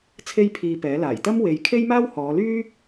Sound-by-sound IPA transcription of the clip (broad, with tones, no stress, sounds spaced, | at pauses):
t͡sʰ e˥ j pʰ iː˧ p ɛː˨˥ l aː˨˩ j t̪ ɐ˥ m w e˨˧ j kʰ e˥ j m aː˥ w h ɔː˨˧ l yː˥